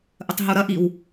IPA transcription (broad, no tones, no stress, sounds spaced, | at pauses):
ʔ ə tˤ ɦ u ɾ ɐ ʔ i w